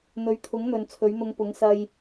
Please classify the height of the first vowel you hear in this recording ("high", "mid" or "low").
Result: mid